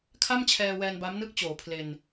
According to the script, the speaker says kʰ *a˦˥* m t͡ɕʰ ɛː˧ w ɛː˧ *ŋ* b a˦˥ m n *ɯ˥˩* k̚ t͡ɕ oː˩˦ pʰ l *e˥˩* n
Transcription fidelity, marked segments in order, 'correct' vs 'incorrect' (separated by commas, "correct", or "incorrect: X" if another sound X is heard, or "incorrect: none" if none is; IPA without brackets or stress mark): incorrect: a˥˩, incorrect: n, correct, incorrect: e˧